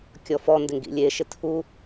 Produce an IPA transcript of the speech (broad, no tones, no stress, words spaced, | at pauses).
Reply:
kʲɔfɔ ndɪŋɡḭlʲeʃɪ tʰu